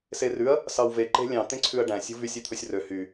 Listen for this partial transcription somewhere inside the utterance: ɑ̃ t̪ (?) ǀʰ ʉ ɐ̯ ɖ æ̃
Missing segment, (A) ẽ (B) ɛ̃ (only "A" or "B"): A